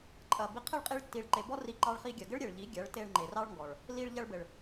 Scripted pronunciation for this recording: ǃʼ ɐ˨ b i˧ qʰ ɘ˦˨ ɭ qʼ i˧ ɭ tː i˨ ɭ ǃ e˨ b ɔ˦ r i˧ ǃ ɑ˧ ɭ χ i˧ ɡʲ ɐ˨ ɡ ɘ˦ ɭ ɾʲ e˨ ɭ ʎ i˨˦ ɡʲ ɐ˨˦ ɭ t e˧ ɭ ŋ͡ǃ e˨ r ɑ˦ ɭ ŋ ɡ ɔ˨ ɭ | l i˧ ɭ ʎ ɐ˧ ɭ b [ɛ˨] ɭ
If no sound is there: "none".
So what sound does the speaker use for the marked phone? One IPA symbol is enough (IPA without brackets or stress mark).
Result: ɘ˨